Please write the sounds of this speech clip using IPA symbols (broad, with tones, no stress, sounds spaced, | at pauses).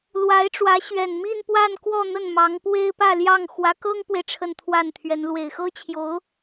l w a˧˥ ɪ̯ ʈ͡ʂ w ä˧˥ ɕ ɥ ɛ˨˩ n m i˥˧ n p w a˥˧ n k w ɔ˥˧ n̪ ə˥˩ n m ɑ˧˥ ŋ p w e˥ ɪ̯ p ä˥˧ l j ɑ˥˩ ŋ x w ä˧˥ k ɤ˥ ŋ p w e˨ ɪ̯ ʈ͡ʂʰ ə˥˧ n t̪ʰ w a˥˩ n t̪ʰ ɥ ɛ˧˥ n l w e˨˩ ɪ̯ x ɤ˥ t͡ɕʰ j o˧˥ ʊ̯